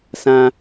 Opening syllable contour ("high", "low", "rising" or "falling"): high